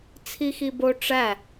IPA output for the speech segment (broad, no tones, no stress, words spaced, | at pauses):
t͡sʰixibo ʈ͡ʂæ